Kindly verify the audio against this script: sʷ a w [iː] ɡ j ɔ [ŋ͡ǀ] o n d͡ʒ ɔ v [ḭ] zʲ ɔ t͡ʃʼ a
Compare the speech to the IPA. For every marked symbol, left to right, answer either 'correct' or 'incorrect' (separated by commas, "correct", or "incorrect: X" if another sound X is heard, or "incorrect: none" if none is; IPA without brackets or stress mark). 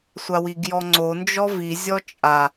incorrect: i, correct, incorrect: i